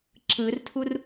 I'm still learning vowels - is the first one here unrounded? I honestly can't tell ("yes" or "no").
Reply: yes